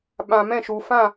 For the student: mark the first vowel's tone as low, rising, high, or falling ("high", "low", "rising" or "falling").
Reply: low